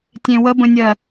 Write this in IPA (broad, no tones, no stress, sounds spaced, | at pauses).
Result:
tʲ ẽ w ə b ə̃ nʲ ɜ